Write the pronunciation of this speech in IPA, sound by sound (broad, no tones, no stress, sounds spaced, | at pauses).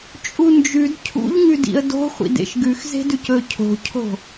t͡ʃʼ u n d͡ʒ ʉ d cʰ ṵ ʎ ŋ ʉ d ḭ ə̯ d o̤ χʷ ḭ d ḛ ʃ ɡ ʉ x z e̤ d ʉ c ɵ cʰ o̤ cʰ o̤